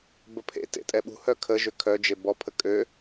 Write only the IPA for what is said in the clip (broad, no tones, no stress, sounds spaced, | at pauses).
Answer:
b ə pʰ ḛ t ḛ tʼ ɛ ɓ ṳ h œ kʰ ə ʒ ø kʰ œ d͡ʒ e b ɔ pʰ ə kʼ ø